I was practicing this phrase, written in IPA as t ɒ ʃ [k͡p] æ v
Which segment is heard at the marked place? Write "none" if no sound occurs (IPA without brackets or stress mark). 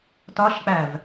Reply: k͡p